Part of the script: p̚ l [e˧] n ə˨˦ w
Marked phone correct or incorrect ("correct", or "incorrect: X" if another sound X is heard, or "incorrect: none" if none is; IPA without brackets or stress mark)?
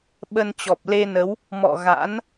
correct